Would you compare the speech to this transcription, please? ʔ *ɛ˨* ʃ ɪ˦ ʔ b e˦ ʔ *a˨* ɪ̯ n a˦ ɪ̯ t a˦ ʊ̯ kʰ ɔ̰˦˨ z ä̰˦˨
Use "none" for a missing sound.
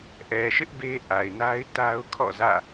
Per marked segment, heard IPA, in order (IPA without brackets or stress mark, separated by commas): ɛ˨, a˨